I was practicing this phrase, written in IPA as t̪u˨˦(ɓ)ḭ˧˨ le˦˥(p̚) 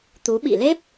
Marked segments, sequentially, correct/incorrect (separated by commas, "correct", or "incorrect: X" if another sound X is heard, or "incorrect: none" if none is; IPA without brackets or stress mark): correct, correct